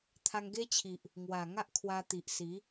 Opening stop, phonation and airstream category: aspirated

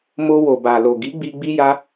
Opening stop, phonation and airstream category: plain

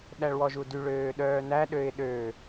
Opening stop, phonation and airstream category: implosive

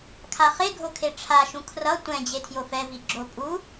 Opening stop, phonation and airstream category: aspirated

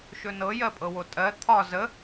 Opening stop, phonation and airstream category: ejective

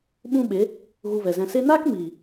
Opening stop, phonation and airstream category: implosive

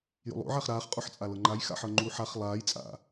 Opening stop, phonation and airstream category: ejective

